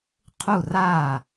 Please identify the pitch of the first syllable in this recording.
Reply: falling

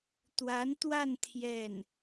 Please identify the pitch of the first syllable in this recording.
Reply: rising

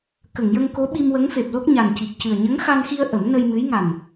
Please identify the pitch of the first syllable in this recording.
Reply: low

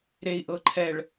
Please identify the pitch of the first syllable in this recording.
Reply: low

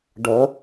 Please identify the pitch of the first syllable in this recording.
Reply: rising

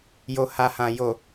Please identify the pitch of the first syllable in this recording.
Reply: low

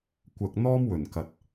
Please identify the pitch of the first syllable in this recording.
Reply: low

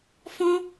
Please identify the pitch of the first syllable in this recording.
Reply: high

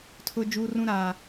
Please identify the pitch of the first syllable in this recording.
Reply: high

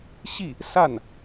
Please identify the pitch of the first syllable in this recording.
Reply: falling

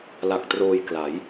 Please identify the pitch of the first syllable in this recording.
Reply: low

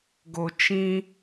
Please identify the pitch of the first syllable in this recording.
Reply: high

